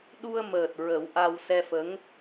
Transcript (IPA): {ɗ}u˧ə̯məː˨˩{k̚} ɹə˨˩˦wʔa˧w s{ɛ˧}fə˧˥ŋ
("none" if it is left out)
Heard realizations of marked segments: ɗ, t̚, ɛ˧

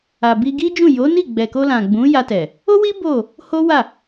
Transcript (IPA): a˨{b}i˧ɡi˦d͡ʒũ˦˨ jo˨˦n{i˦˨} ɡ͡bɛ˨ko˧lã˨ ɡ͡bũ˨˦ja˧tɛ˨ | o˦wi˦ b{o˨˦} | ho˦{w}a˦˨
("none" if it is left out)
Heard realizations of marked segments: b, i˦˨, o˦˨, w

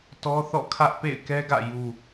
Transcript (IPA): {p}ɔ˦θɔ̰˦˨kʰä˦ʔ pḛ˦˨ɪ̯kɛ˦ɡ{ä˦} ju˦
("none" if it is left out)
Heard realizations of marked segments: t, ä̰˦˨

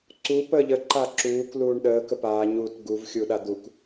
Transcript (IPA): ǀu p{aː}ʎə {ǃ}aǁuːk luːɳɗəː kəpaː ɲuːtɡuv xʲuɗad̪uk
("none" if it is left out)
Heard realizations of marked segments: əː, ǃ

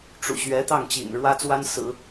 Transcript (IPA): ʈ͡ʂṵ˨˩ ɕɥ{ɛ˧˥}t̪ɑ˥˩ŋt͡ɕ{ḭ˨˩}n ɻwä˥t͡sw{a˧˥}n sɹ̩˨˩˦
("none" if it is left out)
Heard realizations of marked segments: ɛ˧˥, ḭ˨˩, a˥

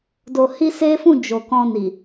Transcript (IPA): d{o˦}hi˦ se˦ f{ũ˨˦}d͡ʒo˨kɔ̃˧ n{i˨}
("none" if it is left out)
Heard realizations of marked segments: o˧, ũ˦˨, i˨

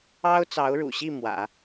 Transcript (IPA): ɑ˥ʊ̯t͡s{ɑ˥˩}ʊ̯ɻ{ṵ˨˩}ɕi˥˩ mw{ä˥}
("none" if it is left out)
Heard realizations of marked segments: ɑ˧˥, ṵ˨˩, ä̰˨˩˦

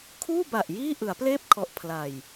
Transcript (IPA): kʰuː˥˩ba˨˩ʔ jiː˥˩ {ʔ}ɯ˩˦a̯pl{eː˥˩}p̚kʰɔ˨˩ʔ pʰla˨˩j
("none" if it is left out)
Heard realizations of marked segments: ʔ, eː˥˩

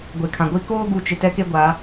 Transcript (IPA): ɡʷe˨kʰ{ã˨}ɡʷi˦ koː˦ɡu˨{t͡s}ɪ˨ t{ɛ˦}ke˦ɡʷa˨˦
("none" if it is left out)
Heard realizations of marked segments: ã˨, t͡ʃ, ɛ˦

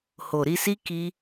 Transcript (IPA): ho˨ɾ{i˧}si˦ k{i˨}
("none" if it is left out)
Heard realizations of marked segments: i˧, i˦

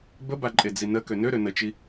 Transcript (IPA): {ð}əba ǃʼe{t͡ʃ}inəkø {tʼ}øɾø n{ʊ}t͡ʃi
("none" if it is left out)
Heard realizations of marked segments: b, d͡z, n, ə

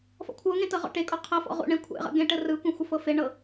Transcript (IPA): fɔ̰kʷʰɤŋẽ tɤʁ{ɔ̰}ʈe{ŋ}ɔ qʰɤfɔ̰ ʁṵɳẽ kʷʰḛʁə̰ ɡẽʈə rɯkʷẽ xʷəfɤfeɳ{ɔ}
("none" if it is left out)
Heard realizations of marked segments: ɔ̰, kʼ, ɤ

